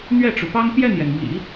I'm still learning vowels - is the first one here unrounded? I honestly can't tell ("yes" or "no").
yes